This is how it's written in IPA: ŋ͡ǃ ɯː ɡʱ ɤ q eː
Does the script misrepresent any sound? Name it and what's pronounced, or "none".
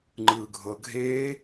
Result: q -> ɡʱ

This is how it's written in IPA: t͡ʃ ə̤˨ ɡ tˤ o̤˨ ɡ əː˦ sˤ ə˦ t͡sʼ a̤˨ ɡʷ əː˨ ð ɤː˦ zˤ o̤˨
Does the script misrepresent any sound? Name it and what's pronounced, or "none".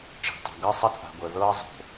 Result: none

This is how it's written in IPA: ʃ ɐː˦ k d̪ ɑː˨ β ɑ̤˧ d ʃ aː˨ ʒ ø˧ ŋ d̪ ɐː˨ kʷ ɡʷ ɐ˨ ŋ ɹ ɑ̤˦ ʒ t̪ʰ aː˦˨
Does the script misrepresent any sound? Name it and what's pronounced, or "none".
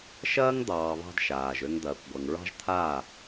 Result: k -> ŋ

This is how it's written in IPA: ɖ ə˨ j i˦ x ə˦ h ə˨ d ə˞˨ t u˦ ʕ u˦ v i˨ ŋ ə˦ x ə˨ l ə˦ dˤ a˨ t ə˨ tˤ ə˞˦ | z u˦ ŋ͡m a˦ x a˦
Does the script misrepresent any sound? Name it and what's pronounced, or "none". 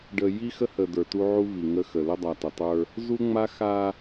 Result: none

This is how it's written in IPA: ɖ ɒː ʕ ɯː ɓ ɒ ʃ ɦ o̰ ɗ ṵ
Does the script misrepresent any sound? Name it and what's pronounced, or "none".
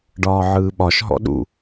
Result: o̰ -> ɔ̰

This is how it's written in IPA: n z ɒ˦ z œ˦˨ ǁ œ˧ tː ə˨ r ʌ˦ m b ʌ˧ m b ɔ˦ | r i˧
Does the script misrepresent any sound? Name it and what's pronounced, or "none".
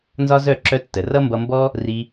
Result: none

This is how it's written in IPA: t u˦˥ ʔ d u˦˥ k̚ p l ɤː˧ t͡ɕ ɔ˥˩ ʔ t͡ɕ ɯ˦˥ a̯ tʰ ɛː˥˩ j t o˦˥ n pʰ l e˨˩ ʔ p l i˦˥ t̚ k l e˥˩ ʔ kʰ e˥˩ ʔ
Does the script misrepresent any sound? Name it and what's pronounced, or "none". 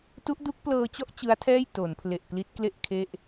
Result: o˦˥ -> o˩˦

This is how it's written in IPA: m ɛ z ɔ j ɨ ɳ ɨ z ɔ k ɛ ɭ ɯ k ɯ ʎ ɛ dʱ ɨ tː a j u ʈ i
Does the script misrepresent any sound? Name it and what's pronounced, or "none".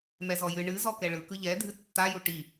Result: none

